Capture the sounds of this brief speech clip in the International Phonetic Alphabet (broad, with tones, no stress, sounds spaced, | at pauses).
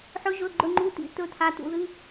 ħ ɵ˨˦ ʒ ɵ˩˧˩ ɡ͡ǃ ɵ˩˧˩ ŋ͡ǃ u˩˧˩ t̪ ḭ˨˦ t̪ ɵ˨˦ t̪ʰ a˩˧˩ t̪ ṵ˩˧˩ ð ɨ˩˧˩